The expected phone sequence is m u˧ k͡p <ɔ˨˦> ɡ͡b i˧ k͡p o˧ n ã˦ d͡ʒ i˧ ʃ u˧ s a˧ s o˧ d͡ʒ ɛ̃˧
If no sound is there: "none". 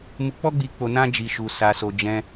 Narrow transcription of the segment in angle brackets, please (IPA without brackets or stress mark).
ɔ˦